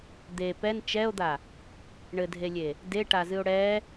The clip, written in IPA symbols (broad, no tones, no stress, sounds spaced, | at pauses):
d̪ e p ɛ n t͡ʃ ɛ o̯ d̪ a | ɳ ɘ dʱ e lʲ e | d e ʈ a z ɨ o̯ ɽ ɛ